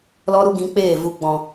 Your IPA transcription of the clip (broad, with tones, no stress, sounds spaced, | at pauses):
l ɔ˦ ɾ u˦ ɡ ĩ˧ k͡p eː˦˨ v u˨ ɡ͡b ɔ̃˨